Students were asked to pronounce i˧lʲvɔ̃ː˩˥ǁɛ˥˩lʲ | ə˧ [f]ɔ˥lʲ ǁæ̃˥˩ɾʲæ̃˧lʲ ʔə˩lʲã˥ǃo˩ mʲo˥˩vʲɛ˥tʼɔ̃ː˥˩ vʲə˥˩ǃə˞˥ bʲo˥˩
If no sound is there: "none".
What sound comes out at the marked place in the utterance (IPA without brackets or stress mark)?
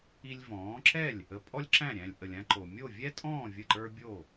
pʼ